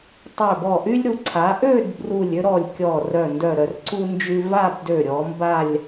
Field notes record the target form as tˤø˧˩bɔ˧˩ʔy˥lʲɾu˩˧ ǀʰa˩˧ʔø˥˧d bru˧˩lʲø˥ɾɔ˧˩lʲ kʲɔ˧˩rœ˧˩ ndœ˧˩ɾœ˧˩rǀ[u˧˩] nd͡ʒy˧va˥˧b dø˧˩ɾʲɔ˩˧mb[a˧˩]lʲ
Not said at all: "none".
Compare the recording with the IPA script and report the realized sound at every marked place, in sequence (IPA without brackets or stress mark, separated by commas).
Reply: u˥, a˥˧